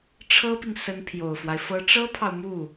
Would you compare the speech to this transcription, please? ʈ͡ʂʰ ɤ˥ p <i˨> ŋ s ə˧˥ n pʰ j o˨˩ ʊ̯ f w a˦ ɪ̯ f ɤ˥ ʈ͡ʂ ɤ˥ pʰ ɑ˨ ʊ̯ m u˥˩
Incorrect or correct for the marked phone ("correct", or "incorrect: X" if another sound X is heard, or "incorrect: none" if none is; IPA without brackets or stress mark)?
correct